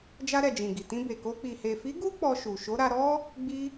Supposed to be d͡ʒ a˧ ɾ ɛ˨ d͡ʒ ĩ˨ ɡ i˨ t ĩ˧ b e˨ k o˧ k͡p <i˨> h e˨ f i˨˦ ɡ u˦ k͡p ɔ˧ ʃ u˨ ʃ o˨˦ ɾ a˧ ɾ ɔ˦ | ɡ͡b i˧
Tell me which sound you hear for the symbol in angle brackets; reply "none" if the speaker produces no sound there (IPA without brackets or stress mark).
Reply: i˨